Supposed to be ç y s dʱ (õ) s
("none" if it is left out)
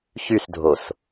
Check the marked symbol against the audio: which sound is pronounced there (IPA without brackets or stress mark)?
o